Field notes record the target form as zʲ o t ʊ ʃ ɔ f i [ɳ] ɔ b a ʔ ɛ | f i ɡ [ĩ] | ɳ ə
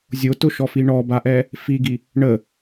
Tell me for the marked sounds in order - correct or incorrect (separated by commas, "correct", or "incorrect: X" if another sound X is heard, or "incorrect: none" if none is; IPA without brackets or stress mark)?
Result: correct, incorrect: i